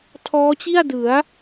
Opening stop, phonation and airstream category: aspirated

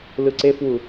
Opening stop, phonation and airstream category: click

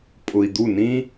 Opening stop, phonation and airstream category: ejective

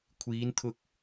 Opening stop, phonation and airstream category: aspirated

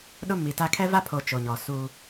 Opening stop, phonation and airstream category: implosive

